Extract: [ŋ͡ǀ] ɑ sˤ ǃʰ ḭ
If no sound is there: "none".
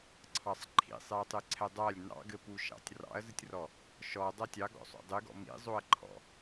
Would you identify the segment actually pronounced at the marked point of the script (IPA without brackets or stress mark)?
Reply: ǀʰ